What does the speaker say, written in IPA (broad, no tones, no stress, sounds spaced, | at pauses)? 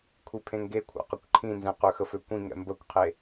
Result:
kʷʰ i pʰ ẽ ŋ ɡ e kʷʰ a̰ q ə kʷ ǃʰ ĩ n z ɛ̃ q ø x ə f ø kʷ ĩ ŋ ɛ̰ m b ə kʷ qʰ e